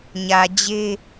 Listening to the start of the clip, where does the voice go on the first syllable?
low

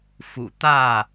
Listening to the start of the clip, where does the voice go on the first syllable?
low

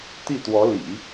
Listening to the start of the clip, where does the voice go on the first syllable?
falling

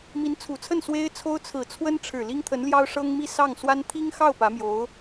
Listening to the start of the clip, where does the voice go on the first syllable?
rising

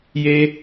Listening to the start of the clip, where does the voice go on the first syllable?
high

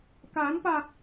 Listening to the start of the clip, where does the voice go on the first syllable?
rising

